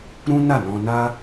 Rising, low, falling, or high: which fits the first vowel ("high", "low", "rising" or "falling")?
high